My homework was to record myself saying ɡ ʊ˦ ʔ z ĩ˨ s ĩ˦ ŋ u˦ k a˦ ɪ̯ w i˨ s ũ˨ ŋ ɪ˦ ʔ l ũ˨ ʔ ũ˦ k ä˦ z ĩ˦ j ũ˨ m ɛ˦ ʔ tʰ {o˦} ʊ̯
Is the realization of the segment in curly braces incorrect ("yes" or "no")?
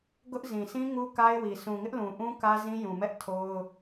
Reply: no